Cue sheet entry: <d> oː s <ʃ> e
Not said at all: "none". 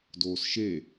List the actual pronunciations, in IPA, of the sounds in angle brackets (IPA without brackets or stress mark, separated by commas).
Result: d, ʃ